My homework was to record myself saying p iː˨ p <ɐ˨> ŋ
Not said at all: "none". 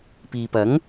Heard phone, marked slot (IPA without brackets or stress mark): ɐ˨˥